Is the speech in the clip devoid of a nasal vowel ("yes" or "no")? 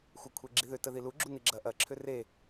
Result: yes